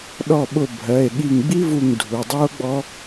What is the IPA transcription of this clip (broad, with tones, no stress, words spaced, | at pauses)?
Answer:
ɗɔ˧˩ɓʊ˧˩ bʱɜ˩˧˩e̯ɠi˧˩ŋɡ͡bi˦˥vu˧˩ŋ dʱu˩˧˩dˤu˦˥o̯ɡ͡bɔ˦˥